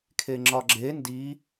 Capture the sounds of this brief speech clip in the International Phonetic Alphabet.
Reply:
kʰ e ŋ͡ǁ ɒ ɡ͡ǁ e n d i

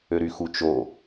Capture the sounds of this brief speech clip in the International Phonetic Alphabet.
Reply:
ø ɾ y x u t͡ʃ o

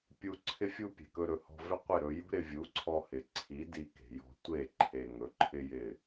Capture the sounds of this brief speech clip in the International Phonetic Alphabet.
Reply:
pʲ u˧ ǀʰ ɪ˧ fʲ u˧ pʲ e̤˨ k ɵ˧ ɾ ɵ˨ h ɔ̤˧ v ɪ˦ qʷ ɪ˦˨ ɾ ɵ˧ j ṳ˦ ɾ ɪ˧ vʲ u˨˦ ǀʰ ɔ˧ h ɪ˨ ǀʰ i˨˦ d i˧ k e̤˨ j ɔ̤˧ tʷ e˦˨ ǃʰ e˨ ŋ ɵ˨˦ ǃʰ ɪ˦ j ɪ˦˨

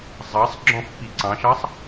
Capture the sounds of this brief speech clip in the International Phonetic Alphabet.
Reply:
zˤ ɑ sˤ ɡ͡ǁ ɔ̃ f p i ǀ ɑ̃ ʃ ɑ sˤ

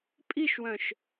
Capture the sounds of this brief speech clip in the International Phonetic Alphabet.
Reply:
pʼ i ʃ w œ̃ ʃ

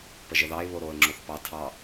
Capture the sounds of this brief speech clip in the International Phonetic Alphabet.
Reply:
p ə ʒ ə ð ɑ ɪ̯ β o ɾ o ə̯ ŋ͡ǁ o θ p ɑ tʰ ɑ

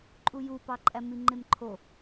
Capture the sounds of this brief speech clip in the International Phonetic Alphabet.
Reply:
ǃʼ u j u p ɑ ǃʼ æ m i ŋ͡ǃ e m ǃʰ o

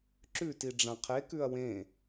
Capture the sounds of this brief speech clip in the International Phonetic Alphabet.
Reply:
ǁ ʉ t i ɖ͡ʐ ã qʰ e k ʉ ɐ̯ w ẽ

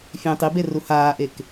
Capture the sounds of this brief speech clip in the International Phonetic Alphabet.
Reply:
fʲ ẽː tˤ i b e r u h aː ʔ e k

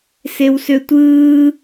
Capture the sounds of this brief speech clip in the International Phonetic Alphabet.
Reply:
s e w s ø tʷ ɯː

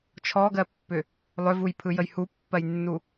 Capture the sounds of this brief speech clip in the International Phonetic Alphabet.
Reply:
t͡ʃʰ ɔ ɡ ɜ pː ʏ | lˠ ʏ v u j pʰ ɯ j ə j h u pː ɜ j nː u

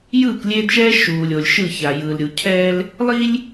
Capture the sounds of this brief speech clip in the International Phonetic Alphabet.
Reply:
j ɯː˦˨ k lʲ eː˦ d ʃ ɛː˦ ʃ uː˨ lʲ o˨ lʲ ʃ ɯ˦˨ ç a˨ j ɯː˨ l ɾʲ u˨ cʰ ɛː˦ l | lˠ i˦ lʲ

